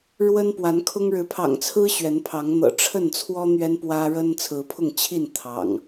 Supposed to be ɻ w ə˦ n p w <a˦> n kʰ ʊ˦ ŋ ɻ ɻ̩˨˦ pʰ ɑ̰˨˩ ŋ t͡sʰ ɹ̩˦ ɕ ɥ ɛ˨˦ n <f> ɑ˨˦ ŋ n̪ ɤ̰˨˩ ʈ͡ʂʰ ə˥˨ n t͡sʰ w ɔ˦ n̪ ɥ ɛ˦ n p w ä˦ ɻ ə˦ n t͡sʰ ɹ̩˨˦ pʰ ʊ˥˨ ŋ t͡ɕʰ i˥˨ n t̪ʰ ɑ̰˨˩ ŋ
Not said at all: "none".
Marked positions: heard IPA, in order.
a˨˦, pʰ

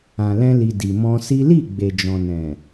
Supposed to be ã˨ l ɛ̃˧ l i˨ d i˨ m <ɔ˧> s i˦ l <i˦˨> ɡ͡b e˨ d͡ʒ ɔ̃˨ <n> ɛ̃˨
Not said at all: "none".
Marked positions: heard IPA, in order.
ɔ̃˧, i˦˨, n

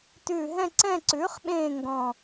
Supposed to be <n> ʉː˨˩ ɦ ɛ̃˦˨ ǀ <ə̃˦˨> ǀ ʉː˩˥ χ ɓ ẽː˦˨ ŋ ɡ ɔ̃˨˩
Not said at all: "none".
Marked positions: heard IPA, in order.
t, ɛ̃˦˨

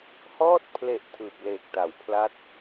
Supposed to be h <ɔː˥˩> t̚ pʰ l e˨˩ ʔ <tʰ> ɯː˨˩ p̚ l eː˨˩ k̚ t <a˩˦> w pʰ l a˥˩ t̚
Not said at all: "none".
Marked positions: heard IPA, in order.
ɔː˥˩, tʰ, a˩˦

